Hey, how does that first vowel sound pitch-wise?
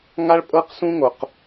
high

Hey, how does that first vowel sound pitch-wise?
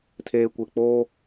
low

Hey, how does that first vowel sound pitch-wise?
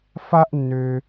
high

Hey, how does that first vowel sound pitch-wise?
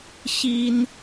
high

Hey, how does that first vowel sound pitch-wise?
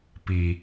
low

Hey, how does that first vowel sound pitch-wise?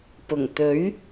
low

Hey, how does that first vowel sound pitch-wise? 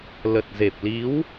low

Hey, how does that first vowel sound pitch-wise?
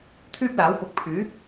high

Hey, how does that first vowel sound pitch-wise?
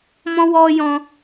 high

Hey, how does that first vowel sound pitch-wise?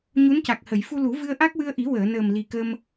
rising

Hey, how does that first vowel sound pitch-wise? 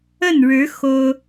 falling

